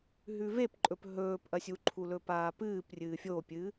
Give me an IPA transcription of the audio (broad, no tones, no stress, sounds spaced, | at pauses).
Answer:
ɦ ʉ v e p ǃʼ ɵ p ɦ ɵː p ʔ ɐ sʲ u ǃʰ u l ɵ p aː p ɨː p rʲ ɨː fʲ o pʲ ɨ